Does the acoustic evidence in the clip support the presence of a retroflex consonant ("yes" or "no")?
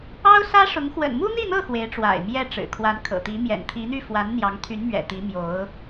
yes